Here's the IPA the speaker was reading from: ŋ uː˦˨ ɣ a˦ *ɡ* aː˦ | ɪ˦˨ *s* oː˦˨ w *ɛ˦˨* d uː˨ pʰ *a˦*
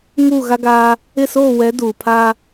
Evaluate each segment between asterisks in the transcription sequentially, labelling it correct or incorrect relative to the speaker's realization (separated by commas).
correct, correct, incorrect, correct